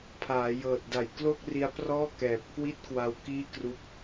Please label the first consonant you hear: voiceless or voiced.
voiceless